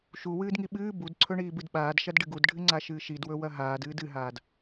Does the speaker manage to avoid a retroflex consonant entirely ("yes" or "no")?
no